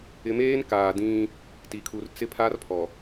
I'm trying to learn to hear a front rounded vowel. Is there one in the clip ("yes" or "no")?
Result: no